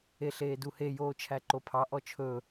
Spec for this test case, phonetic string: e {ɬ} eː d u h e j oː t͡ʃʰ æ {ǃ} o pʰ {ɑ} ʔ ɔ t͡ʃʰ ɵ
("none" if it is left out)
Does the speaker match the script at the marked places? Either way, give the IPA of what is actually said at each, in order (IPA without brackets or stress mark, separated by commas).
ɬ, ǃ, ɑ